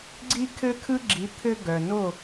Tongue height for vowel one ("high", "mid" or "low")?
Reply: high